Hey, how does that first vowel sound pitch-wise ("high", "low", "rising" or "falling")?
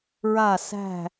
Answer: falling